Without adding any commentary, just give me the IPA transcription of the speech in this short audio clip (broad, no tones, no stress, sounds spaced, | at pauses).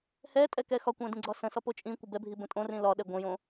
h ɛ tʼ ɛ k ɛ x ɒ kʷ ɛ̃ d ĩ ɡ͡ǀ ɒ s ə̃ s ɒ p o t͡ʃʼ ĩ kʷ ə b ɛ bʱ i b ə̃ tʼ õ r ĩ l ɒ ɗ ɛ ɡʷ ə̃ j õ